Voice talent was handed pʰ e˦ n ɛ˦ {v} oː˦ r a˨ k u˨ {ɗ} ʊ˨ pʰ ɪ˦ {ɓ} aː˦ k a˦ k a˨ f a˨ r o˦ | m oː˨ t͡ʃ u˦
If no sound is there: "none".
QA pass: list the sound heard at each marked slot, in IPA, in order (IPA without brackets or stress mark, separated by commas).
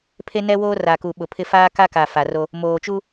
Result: w, ɓ, f